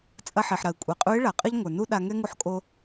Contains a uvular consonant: yes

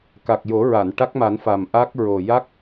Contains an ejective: no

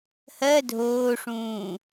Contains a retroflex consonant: yes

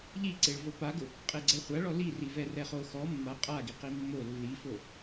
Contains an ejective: yes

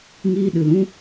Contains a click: no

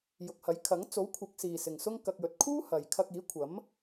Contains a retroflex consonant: no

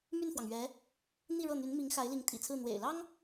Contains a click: no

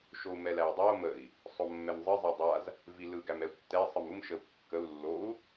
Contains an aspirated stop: no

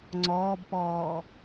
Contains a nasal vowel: no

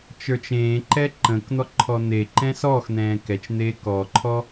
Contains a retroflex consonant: no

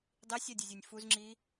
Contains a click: yes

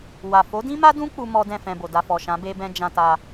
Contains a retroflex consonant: no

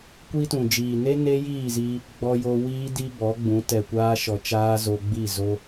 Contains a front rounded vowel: no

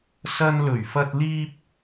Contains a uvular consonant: no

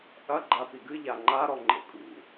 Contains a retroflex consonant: no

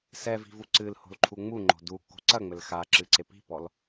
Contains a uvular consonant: no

